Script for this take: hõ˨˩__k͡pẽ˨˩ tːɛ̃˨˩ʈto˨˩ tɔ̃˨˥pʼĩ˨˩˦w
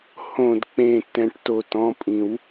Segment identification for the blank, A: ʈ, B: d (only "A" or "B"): B